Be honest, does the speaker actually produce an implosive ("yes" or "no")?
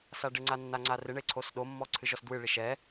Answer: yes